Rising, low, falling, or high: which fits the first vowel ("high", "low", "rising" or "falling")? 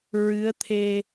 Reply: rising